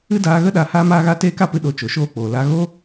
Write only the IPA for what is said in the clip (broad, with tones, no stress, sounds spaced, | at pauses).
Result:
ɨ˦ d aː˧ ɣ ə˦ ɗ a˧ h aː˧ m aː˧ ɣ a˧ t eː˦ k a˦ p ɨ˧ ɗ o˨˦ t͡ʃ o˨ ʃ oː˧ k͡p oː˨ l a˧ ɣ o˦